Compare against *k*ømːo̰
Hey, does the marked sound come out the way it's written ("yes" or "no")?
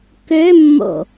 yes